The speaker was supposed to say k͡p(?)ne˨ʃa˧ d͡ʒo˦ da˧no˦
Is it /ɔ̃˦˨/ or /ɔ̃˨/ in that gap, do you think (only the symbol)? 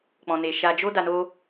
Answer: ɔ̃˨